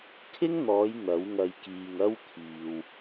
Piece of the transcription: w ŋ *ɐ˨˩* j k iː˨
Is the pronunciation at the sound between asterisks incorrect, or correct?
incorrect